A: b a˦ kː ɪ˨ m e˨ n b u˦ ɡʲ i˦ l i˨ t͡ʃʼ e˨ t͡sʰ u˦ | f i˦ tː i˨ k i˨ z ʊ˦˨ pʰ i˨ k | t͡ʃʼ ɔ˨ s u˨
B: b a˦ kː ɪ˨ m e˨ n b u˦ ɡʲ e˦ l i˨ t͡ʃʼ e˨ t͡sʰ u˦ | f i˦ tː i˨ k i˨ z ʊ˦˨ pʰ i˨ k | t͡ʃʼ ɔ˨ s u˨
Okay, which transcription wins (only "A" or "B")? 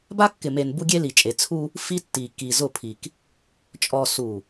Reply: B